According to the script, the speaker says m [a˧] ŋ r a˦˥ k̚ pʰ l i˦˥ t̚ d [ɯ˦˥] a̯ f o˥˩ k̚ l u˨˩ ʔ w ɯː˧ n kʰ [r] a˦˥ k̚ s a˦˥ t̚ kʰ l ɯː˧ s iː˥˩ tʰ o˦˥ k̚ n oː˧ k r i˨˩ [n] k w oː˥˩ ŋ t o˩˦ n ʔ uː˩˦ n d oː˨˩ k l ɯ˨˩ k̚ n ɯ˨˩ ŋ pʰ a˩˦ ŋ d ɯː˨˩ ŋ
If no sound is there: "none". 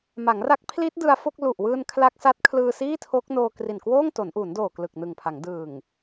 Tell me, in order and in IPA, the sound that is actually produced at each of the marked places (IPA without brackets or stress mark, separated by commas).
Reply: a˩˦, ɯ˧, l, n